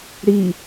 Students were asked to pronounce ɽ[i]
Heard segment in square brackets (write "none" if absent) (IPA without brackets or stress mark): i